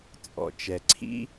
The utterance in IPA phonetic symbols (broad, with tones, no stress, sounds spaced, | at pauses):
t͡sʼ ɔ̰˩ t͡ʃ ɛ˩ ǀʰ ḭ˥